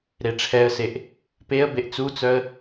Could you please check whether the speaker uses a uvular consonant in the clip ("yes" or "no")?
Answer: no